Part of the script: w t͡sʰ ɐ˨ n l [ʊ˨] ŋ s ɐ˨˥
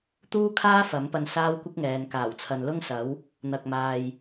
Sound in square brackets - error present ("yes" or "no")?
yes